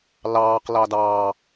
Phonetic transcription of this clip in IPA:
l ɑː q l ɑ d ɑː

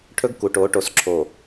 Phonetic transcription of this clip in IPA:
ʈʰ ɵ˦ ɡ k u˨ ʈ o˨˦ ʈ o˨ s ǁʰ o˨

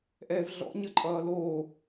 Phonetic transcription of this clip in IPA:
ʔ ɛː v ɮ ɔ̰ ɲ ə ǃʼ ʌː l oː

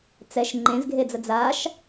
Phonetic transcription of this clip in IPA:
t͡s ɛ ʃ ŋ͡ǃ ẽ z ɡʱ e d͡z ə d͡z a ʃ

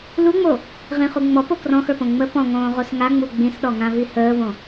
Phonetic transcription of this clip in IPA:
l u ŋ͡m o | ʁ ĩ χ u ŋ͡m ɔ p o k r ɔ̃ x ə˞ p õ ŋ͡m ə p ɔ̃ ŋ õː ʁ o s ŋ a ŋ͡m u ɡ͡b ĩ s ɗ ɔ ŋ ã v i h əː v õ

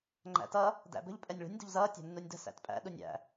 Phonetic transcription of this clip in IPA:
ŋ͡ǃ æ̰ t ʌ | d æ̰ b ə̤ ʎ pʼ ɛ nʲ ɭ ṳ nʲ d ṳ ʎ z ʌː tʲ æ̤ nː u nʲ d ə̤ s æ̰ t pʼ æ̰ ɗ u nʲ æ̰

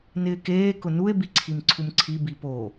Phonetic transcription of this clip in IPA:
n ɪː k eː k ʊ n u e̯ b i ǀʰ i m ǀʰ u m ǀʰ i b i p o

